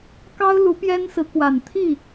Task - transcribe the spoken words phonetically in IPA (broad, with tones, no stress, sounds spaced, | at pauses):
k ɑ˥ ʊ̯ l u˧˥ p j ɛ˥ n s ɹ̩˧˥ k w a˨˩ n t̪ʰ i˥˩